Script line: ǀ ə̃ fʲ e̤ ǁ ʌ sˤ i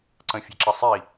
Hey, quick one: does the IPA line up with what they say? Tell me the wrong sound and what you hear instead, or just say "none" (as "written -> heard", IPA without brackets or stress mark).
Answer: none